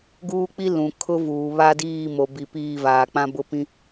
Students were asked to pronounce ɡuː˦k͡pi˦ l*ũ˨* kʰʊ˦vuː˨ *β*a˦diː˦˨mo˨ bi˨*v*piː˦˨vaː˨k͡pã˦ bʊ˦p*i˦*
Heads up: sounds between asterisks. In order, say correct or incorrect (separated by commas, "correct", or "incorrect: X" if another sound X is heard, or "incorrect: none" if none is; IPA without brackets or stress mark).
correct, correct, incorrect: none, incorrect: ĩ˦